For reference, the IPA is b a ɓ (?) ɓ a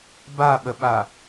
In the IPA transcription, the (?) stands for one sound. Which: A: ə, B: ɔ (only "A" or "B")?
A